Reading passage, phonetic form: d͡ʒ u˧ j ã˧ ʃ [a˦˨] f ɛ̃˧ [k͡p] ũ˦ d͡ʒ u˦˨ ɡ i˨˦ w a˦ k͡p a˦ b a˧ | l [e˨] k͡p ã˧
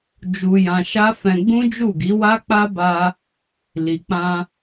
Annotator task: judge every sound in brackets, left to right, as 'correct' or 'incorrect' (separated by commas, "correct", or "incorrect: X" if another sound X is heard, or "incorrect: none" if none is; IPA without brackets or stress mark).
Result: incorrect: a˦, incorrect: ɡ͡b, incorrect: i˨